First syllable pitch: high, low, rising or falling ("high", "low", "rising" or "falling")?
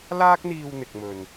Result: high